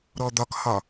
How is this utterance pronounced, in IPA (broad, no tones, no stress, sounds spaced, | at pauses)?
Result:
ɾ ɔ d̪ ɒ k h ɒ